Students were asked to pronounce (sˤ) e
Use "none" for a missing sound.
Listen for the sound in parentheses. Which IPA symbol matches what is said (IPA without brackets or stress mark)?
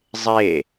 zˤ